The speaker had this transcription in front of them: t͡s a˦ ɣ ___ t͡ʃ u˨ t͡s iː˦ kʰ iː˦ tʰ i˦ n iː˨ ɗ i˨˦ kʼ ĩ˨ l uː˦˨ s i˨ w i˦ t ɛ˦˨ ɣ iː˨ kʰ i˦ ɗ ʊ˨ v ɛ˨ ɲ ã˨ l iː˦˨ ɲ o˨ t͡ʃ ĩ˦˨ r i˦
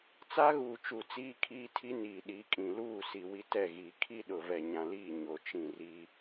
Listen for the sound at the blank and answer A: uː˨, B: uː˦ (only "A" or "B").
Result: A